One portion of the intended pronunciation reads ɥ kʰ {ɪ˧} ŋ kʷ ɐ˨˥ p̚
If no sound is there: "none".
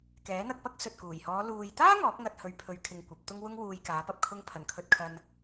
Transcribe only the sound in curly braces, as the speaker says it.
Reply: ɪ˧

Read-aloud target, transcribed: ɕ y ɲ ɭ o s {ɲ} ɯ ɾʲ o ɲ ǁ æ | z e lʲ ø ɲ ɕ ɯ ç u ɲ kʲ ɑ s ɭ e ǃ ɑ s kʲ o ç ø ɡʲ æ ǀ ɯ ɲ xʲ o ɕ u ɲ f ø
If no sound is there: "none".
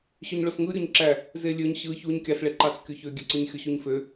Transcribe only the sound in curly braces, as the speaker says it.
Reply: ŋ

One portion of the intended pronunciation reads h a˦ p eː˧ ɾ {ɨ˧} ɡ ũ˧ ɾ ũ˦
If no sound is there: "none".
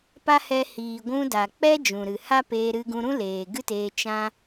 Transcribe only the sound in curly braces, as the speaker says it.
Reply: ɨ˧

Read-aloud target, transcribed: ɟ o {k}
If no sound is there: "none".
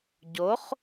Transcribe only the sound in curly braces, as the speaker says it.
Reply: χ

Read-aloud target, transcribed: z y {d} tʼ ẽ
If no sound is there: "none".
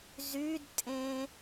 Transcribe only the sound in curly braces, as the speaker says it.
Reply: d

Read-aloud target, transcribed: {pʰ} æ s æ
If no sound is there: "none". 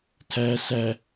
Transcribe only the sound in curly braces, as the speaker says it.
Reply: tʰ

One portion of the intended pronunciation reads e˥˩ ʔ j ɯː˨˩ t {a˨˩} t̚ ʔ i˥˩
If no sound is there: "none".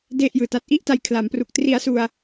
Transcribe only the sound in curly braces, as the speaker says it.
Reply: a˦˥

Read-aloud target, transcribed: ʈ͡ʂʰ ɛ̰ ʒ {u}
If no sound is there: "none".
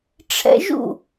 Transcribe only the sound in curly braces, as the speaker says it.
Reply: ṵ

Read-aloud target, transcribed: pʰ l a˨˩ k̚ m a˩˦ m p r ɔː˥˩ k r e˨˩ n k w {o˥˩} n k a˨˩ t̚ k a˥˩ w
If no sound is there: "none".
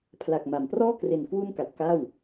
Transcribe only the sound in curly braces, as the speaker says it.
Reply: u˥˩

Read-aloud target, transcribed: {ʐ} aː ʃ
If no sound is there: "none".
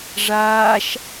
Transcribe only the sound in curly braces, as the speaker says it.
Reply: ʐ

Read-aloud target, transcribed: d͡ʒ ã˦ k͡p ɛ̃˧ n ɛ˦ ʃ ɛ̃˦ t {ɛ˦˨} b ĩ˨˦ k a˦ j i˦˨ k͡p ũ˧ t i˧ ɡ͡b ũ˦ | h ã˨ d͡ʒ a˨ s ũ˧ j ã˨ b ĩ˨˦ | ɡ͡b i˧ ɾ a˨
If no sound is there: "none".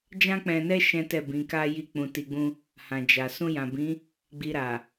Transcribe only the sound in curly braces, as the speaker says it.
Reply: ɛ˦˨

